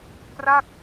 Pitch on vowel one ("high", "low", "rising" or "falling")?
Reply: falling